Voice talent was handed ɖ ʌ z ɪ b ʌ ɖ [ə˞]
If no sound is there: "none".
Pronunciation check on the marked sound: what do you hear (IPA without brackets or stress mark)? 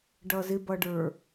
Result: ə˞